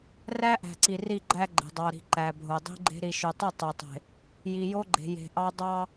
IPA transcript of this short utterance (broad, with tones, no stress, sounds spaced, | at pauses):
r æ˦ ʔ æ̤˨ ǀ i˨ r i˦˨ ɡ͡ǃ æ˦ ɡ͡ǃ e̤˨ dˤ ɑ˨ ɾ i̤˨ ǃ æ˨ bʱ o˨ dˤ i̤˦ ɡ͡ǃ e̤˦ ɾ i˨ ʃ ø˨ tˤ y˦˨ tˤ ø˨ tˤ e̤˨ | j i˨ j o˦ ɡ͡ǃ e̤˨ j e̤˨ ʔ ɑ˦ dˤ ɑ˦